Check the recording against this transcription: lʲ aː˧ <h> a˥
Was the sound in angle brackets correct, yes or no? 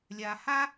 yes